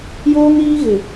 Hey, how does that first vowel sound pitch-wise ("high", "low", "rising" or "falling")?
high